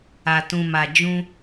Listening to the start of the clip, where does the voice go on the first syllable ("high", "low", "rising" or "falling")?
low